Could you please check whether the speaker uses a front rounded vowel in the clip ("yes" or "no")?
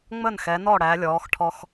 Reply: no